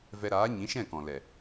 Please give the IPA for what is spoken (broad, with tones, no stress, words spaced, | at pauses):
vɛ˧ɾaː˨˦ ɲĩ˨˦ʃɛ̃˦˨kɔ̃˨ lɛ˨